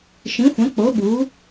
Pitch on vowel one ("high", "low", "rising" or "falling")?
rising